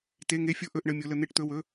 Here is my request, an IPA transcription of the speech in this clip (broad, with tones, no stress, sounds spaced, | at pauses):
t e˧˥˧ ŋ e˦˥ fʲ o˦˥ ʔ ɵ˧˥˧ ʔ ɳ ə˧˥˧ mʲ o˦˥ l ə˦˥ n̪ e˦˥ ʈ t̪ ɵ˧˥˧ w ɵ˧˥˧